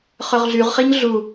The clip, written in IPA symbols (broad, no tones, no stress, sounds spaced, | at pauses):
χ œ ʁ ɮ y ʁ χ i ɲ ɮ u